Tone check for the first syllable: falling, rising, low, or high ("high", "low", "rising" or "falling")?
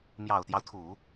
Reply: low